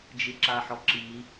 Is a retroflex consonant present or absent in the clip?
absent